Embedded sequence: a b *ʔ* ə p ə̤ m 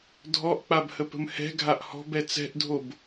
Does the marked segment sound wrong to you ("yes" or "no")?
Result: yes